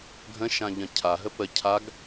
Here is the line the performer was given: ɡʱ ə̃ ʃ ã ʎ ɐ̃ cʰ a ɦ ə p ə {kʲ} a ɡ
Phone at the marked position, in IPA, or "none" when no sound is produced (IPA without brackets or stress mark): cʰ